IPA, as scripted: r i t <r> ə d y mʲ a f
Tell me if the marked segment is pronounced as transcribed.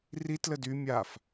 no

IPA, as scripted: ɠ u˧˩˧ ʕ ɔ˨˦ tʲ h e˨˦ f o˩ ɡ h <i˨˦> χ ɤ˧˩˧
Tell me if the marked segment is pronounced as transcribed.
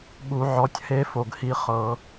yes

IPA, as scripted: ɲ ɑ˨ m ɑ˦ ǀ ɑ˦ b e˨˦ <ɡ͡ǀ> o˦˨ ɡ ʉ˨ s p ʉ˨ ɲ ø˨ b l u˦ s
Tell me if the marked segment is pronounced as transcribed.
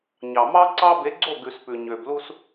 yes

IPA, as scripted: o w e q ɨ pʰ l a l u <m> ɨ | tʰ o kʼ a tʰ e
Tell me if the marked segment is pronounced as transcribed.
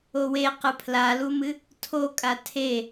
yes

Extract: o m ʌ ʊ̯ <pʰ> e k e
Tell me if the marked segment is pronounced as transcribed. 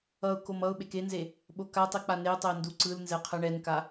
no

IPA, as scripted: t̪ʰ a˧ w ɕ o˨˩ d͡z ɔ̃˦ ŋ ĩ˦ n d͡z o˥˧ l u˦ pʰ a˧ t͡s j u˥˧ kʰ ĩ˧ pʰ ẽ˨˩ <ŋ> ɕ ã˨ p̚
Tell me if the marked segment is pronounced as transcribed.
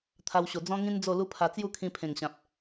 yes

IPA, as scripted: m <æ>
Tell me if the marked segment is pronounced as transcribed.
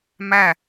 yes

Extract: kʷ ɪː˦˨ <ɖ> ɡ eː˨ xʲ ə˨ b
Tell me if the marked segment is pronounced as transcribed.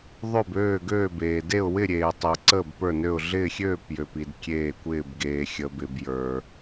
no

